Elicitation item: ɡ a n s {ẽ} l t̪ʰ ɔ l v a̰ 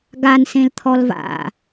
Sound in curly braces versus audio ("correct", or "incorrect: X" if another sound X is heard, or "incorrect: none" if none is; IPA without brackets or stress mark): correct